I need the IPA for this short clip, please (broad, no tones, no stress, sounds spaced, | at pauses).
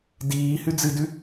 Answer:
d iː h ʉ d͡z ɨ d ʉ